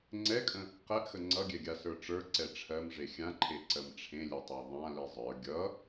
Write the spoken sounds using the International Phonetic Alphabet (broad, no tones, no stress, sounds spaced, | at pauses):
ŋ͡ǀ ɛ kʼ ə̃ | q ɛ ʔ x ə ŋ͡ǀ ʌ ɡʲ ɛ ɡʲ a s ə˞ ʈ͡ʂ ə˞ ǀ ɛ ʈ͡ʂʰ ɜ m ʐ e xʲ ã ǃʰ e ǀ ɜ m ʈ͡ʂʰ ẽ lʲ ɛ tˤ ə˞ ðˤ ã l i zˤ ə˞ ɡʲ ʌ